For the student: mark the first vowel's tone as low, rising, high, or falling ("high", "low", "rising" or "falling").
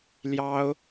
high